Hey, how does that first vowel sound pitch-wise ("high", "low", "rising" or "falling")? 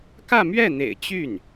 falling